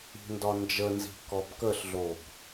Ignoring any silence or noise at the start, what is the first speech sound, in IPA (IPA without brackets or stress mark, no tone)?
i̤